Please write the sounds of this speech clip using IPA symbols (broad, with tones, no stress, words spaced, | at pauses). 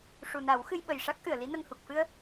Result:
ʂu˨˩na˨˩˦w xɨ˧jɓə˨˩jʂa˦˥k̚ ʔɨ˨˩˨ə̯li˧˥nə˧ŋhu˨˩k̚ fɨ˧ə̯